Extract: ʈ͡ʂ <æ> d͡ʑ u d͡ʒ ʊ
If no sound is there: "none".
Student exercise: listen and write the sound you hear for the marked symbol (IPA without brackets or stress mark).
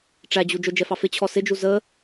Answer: æ